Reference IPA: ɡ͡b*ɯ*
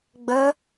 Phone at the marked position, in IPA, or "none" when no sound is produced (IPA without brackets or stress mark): ə